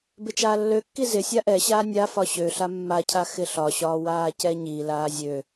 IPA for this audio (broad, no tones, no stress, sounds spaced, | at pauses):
b ɪ t͡ʃ aː lː ø kː i z ɪ sʲ a ʔ ɛ ɕ aː nʲ a f ɒ ɕ ø ɬ a mː a cʰ a x ɪ ɬ ɒ ɕ ɒː w aː c ɛ ɲ i l aː zʲ ø